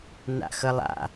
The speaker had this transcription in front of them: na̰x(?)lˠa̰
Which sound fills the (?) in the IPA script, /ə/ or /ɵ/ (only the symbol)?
ə